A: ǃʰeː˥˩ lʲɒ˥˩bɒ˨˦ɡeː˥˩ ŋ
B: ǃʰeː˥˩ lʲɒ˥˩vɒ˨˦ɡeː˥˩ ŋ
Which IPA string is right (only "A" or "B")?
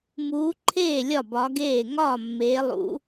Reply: A